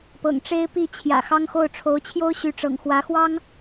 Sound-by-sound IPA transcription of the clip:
pɤ̰˨˩ŋʈ͡ʂe˥ɪ̯pi˥˩t͡ɕʰjä̰˨˩ xɑ˥ŋxo˥˩ʊ̯ ʈ͡ʂʰo˧˥ʊ̯t͡ɕʰjo˥ʊ̯ ɕy˧˥ʈ͡ʂɤ̰˨˩ŋ xwä˧˥xwɑ˥ŋ

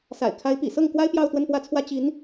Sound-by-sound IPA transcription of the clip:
sa̰˨˩ɪ̯kʰa˧˥ɪ̯ pḭ˨˩sɤ˥˩ŋ kwa˥ɪ̯ pjɑ˥˧ʊ̯t̪wə˥˧npwä˥˩t͡sʰwä˥ t͡ɕi˧˥n

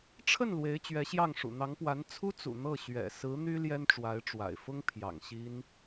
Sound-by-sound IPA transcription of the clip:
ʈ͡ʂʰə˥˩n lwe˧˥ɪ̯t͡ɕɥɛ˧˥ɕjɑ˥˩ŋ ʂṵ˨˩n̪ɑ˧˥ŋpwa˧˥n t͡sʰu˥ t͡sṵ˨˩ n̪ɤ˥˩ɕɥɛ̰˨˩ sɹ̩˧˥ n̪y˥ ljɛ˥nʈ͡ʂwa˧˥ɪ̯ʈ͡ʂwa̰˨˩ɪ̯ fʊ˥ŋ pʰjɑ̰˨˩ŋɕi˥n

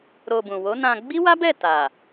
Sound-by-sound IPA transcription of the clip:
ɾo˧bũ˨ wo˨˦nã˧ ɡ͡bi˦wa˦bɛ˦˨ ta˨

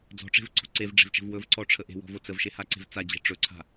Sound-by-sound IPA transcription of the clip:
d͡zɔ̤ʈ͡ʂe̤vǀo̤ ǀevɖ͡ʐe̤vt͡ʃə̤v wɵvǀɔʈ͡ʂʰə ʔe̤wɔ̤vo t͡səvʃehaǀe̤v t͡sad͡ʑe̤ ʈ͡ʂɵǀʰa̤

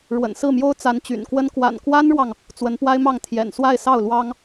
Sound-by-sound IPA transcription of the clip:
ɻwə̰˨˩nsɹ̩˥˩mjo˥ʊ̯ t͡sa˧˥nt͡ɕy̰˨˩nkwə˥n kwa̰˨˩nkwa˥nɻwɑ˨ŋ | t͡swə˧˥npwa˥ɪ̯mɑ˥˩ŋ t̪ʰjɛ̰˨˩n swa˥˧ɪ̯sɑ˥˩ʊ̯ lwɑ˥ŋ

